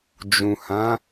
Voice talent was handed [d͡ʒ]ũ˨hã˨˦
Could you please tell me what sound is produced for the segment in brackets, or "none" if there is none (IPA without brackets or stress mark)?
d͡ʒ